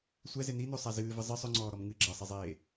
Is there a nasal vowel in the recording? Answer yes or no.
no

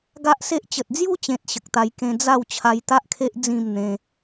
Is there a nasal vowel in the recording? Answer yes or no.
yes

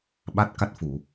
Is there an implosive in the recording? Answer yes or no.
yes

